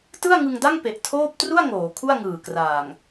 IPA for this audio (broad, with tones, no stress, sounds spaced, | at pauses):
t ɯ˥˩ a̯ ŋ ɯ˧ ŋ d a˥˩ ŋ p e˨˩ ʔ tʰ oː˥˩ p̚ t r u˥˩ a̯ ŋ oː˩˦ kʰ u˥˩ a̯ ŋ ɯː˨˩ k r aː˨˩ ŋ